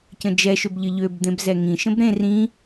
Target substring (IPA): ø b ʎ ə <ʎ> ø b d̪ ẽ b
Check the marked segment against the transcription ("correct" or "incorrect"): correct